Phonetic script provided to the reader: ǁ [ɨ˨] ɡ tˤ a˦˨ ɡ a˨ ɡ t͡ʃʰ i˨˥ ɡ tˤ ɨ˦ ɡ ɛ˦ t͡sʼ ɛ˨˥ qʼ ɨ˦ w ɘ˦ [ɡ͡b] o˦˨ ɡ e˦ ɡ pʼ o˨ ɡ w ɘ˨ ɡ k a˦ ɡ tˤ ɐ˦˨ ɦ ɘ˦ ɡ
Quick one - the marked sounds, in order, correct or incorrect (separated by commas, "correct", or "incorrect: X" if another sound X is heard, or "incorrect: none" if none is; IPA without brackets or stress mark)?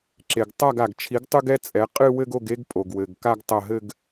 incorrect: e˨, incorrect: ɡ